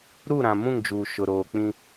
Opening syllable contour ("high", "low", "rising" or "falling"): falling